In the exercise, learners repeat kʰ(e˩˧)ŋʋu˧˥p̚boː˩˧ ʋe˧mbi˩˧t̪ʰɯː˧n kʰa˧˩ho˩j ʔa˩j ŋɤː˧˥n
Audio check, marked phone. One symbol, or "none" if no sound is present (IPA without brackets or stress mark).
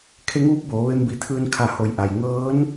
e˧˥